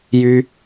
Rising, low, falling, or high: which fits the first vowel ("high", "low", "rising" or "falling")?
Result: high